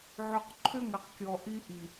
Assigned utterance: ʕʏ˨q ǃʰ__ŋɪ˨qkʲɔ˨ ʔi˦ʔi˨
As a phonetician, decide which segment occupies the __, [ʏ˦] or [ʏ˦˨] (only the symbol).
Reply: ʏ˦